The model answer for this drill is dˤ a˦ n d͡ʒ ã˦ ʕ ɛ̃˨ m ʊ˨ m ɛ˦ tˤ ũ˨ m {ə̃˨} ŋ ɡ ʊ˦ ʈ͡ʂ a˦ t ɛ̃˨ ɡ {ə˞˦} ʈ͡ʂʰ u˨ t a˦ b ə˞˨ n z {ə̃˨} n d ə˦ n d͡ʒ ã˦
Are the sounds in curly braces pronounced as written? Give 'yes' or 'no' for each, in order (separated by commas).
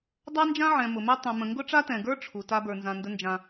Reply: yes, yes, no